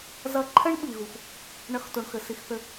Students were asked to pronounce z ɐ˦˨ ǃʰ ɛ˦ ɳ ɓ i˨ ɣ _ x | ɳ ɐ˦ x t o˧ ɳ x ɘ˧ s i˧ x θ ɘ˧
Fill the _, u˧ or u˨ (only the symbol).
u˨